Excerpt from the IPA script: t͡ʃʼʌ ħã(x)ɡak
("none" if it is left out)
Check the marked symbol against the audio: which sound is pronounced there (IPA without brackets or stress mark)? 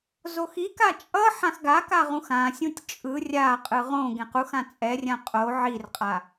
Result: x